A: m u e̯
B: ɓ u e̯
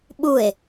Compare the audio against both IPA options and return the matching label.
B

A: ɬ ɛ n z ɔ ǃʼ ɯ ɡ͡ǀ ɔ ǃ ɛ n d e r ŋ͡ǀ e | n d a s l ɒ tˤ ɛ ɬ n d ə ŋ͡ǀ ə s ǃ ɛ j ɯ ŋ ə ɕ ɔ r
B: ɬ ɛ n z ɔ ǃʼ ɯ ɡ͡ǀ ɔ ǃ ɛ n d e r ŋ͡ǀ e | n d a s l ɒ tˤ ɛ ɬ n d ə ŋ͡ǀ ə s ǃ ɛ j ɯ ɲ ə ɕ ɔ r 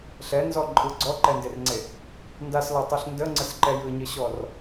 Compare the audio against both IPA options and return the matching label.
B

